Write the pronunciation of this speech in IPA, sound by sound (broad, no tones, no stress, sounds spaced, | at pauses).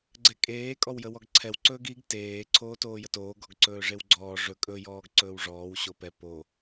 ɡ͡ǀ ɛ kʼ eː kʼ ɔ w j ə w ɔ ɡ ǀʰ ɛ w ǀ ɵː ɡ i ɡ t eː ǀʰ oː t oː j ə t oː ɡ ɔ ɡ ǀ ɵː ʐ e w ɡ͡ǀ ɔː ʐ ɵ kʼ ɵ j ɔː ɡ ǀ ɵː w ʐ ɔː w ɕ o p ɛ p o